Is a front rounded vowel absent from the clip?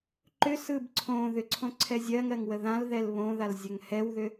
no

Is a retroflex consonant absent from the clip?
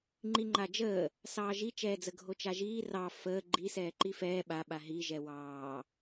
yes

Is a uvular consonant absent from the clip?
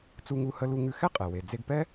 no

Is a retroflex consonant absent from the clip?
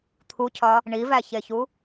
no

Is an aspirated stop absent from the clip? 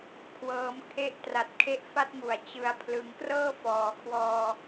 no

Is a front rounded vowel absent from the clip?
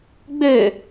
no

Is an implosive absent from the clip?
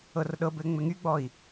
no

